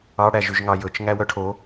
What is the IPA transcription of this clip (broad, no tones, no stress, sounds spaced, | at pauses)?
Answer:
ɑ ɽ æ ʒ y ʒ ŋ ɑ j ɵ t͡ʃ ŋ æ w œ ʈʰ o